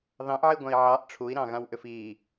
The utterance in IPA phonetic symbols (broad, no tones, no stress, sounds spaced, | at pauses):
ð ɑ̃ ʔ ʕ i ɡʷ ã i̯ ʕ ɑ ʔ ʈ͡ʂʰ u i̯ ɾ ɑ̃ ɣ ã w ʔ ʏ f i